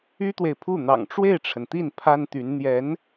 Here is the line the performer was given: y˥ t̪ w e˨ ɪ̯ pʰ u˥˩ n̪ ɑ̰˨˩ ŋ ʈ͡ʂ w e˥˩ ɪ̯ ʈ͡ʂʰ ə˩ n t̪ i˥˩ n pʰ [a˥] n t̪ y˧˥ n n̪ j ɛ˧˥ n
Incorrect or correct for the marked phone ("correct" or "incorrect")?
correct